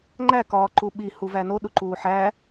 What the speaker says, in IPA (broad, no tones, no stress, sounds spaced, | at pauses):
ŋ͡ǃ æ k ɒː ǃ u ɓ i h u v æ n o ɗ u ǃ uː ħ æ